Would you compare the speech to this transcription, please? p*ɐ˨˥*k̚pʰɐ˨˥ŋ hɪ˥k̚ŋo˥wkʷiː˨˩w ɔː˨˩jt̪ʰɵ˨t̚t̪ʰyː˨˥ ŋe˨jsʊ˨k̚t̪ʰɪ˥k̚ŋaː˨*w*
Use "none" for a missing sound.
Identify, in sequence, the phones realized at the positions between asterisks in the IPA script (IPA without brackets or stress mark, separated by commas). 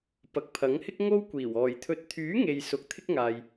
ɐ˨, j